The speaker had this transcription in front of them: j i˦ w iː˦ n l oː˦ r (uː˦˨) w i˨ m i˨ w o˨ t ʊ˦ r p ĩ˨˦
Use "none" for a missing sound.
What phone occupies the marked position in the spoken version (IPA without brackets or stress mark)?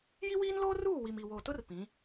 uː˦˨